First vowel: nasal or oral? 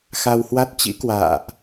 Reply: oral